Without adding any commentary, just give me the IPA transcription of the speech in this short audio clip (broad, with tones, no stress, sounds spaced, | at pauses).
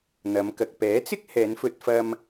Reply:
n̪ ɐ˨˧ m k ɐ˨ k̚ p ɛː˨˥ t͡s ɪ˥ k̚ h ɛː˨˧ n f ɵ˧ t̚ f ɐ˧ m